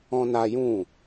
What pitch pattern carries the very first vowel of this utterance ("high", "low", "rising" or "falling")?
high